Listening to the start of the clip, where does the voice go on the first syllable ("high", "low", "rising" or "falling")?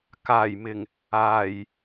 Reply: low